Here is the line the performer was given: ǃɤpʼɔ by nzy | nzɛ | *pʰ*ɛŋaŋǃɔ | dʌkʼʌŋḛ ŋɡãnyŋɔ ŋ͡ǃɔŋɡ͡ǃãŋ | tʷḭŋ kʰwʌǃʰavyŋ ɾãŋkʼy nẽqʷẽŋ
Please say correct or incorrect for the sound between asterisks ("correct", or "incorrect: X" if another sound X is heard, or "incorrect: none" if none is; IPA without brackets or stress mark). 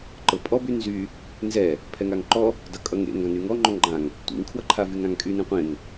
correct